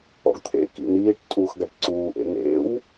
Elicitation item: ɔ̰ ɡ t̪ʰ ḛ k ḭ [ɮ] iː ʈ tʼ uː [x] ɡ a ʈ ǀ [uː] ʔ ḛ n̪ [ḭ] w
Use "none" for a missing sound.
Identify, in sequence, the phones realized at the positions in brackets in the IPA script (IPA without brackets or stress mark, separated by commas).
n̪, x, uː, ḛ